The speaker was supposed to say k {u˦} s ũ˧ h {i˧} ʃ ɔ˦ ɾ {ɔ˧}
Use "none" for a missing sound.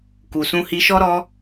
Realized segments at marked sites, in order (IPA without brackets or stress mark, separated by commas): u˨, i˧, ɔ˦